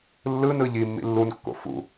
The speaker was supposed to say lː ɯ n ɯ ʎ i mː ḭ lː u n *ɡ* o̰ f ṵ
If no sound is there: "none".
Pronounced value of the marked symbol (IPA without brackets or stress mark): kː